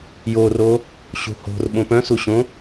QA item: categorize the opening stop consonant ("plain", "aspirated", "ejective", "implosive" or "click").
implosive